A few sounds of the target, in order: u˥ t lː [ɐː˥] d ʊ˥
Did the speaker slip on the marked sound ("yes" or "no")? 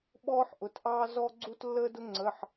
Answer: yes